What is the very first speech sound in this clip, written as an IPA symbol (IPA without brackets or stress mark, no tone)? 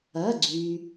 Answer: ɐ